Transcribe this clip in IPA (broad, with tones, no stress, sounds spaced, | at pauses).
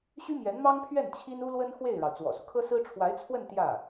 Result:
ɕ y˥ m j ɛ˧˥ n m ɑ˥ ŋ pʰ ɥ ɛ˥˩ n t͡ɕʰ i˥ n u˥ l w ə˥ n x w e˥˩ ɪ̯ ɻ ɑ˩ ʊ̯ t͡s w ɔ̰˨˩ s u˦ kʰ ɤ˥ s ɹ̩˥ ʈ͡ʂʰ w a˧˥ ɪ̯ t͡sʰ w ə˥˧ n t̪ j ä˥˩